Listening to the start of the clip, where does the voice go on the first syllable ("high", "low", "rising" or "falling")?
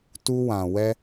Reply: high